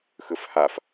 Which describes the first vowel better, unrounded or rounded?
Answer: unrounded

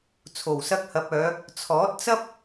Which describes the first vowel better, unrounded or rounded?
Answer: rounded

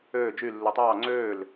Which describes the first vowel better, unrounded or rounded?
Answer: rounded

